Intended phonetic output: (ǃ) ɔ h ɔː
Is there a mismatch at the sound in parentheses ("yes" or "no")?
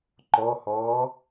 no